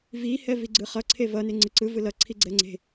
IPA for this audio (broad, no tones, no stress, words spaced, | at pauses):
vi hɛviɡ͡ǀɯχʌ ǀʰevʌ neŋ͡ǀɯǀɯ vɯlʌ ǀʰiɡ͡ǀɛŋ͡ǀe̤